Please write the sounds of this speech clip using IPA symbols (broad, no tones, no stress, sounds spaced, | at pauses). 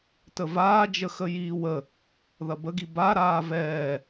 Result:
t ə v aː d͡ʒ ə x ə j iː w ə | ð ɐ b ə ɡ i b a ɾ aː v ɛː